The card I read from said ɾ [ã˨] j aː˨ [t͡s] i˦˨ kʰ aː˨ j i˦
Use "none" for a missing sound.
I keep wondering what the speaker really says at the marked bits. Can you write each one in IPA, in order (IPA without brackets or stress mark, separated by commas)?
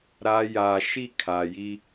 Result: a˨, ʃ